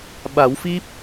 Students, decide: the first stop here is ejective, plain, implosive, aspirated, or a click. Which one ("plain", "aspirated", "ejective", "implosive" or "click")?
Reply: implosive